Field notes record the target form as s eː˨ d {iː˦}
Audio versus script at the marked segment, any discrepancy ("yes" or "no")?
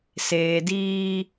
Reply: no